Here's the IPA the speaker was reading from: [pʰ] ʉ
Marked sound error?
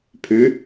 no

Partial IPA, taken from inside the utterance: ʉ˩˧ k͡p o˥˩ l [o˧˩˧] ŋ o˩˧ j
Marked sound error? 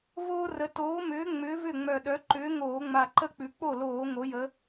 yes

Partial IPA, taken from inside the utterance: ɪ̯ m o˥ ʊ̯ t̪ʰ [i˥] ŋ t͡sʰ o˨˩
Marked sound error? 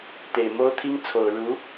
no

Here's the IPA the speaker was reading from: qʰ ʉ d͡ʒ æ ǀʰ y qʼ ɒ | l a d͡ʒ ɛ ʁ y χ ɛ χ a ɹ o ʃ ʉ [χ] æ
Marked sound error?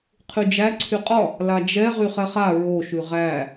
yes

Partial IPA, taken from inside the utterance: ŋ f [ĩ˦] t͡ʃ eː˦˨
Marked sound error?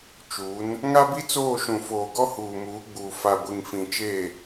yes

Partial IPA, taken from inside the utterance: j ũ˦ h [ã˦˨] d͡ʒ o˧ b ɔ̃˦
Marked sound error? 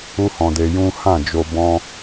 no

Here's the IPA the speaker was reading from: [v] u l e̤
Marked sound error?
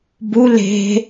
yes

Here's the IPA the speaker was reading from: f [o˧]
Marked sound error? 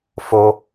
no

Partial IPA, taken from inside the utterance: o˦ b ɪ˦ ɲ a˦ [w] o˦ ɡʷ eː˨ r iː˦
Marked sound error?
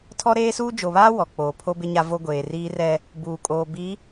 yes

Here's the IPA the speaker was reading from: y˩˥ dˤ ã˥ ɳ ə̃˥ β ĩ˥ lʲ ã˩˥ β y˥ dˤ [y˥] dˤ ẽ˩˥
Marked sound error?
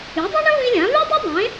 yes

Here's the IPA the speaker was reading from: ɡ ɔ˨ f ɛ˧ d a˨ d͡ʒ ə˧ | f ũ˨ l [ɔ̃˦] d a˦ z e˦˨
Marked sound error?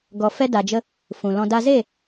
yes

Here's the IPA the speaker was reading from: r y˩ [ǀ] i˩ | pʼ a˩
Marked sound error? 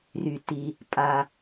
yes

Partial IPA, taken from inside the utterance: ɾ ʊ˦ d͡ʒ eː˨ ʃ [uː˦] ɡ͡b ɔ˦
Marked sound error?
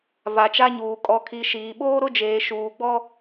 yes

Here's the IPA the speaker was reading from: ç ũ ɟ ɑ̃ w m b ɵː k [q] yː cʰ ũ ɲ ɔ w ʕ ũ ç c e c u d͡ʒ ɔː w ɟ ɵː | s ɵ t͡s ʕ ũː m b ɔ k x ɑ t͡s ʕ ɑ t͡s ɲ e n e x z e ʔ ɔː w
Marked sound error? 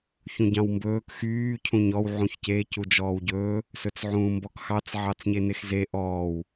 yes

